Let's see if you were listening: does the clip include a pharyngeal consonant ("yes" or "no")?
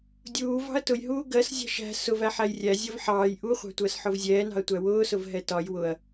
yes